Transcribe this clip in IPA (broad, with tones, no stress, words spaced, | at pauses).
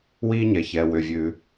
wi˥ɲɛ˩ çɛ˩wʏ˩ vʲʉ˩